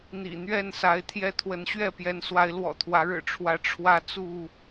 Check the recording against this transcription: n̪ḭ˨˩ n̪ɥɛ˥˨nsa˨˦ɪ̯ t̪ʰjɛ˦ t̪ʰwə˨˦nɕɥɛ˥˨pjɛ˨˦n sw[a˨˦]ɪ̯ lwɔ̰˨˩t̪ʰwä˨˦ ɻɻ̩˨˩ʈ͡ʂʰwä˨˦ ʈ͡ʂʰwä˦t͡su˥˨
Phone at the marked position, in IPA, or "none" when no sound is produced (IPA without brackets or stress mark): a˨˦